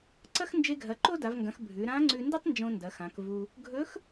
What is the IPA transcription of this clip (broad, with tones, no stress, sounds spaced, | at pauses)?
ǀ ɐ˥ x n d͡ʒ e˧ ɡʱ ɐ˩˧ ǃ o˥ d a˩˧ v ŋ ɡ ɐ̃˩˧ x bʱ ʉ˩˧ ɾ ã˧˥ ŋ͡ǀ ʉ˧ n d ɨ˥ tˤ n d͡ʒ õ˧ n d ɐ˩˧ x ã˩˧ k v u˧ | ɡʱ ɵ˧˥ x